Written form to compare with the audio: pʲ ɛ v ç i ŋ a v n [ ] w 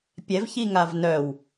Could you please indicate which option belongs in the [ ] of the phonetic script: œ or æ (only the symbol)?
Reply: œ